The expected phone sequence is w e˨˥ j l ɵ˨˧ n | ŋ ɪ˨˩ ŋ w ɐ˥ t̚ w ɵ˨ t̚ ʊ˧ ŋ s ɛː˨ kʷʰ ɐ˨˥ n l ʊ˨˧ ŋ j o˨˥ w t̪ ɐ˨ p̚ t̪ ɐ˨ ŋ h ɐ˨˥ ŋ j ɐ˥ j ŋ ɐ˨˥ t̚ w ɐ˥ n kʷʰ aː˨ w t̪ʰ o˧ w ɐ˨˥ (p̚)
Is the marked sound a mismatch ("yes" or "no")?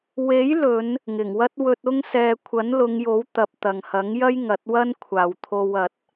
yes